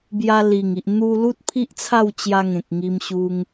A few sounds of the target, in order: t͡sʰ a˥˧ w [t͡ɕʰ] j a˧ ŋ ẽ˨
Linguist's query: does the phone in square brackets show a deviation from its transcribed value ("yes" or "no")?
yes